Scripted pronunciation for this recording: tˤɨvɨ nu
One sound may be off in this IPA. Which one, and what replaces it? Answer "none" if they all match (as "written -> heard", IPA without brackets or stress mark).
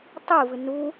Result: none